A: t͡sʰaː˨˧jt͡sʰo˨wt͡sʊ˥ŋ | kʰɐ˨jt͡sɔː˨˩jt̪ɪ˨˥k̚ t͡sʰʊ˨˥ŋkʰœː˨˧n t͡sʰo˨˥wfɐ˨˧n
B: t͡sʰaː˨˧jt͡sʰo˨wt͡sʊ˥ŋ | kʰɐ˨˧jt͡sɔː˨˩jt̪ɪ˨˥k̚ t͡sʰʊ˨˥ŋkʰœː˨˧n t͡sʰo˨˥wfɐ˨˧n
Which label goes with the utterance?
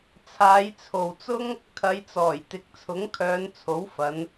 B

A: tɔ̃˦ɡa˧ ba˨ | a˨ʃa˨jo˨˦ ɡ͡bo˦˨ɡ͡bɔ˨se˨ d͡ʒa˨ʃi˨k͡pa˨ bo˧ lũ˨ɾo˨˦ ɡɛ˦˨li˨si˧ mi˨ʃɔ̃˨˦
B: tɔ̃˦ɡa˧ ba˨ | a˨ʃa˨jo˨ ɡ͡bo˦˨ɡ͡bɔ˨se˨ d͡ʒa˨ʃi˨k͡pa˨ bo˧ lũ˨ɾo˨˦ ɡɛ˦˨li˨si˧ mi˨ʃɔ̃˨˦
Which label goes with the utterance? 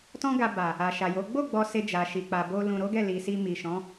A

